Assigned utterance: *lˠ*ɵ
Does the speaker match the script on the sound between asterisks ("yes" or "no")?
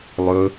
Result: yes